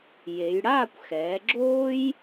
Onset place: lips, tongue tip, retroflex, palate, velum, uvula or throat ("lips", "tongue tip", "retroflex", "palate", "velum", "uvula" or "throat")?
palate